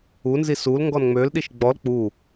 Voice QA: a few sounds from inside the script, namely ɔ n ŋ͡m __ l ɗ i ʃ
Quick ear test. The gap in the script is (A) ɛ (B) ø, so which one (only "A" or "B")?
B